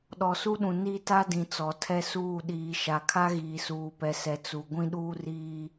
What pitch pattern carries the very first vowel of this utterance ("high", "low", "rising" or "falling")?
low